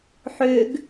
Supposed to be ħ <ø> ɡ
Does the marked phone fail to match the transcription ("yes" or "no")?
no